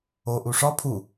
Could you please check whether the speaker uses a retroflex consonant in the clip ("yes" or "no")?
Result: yes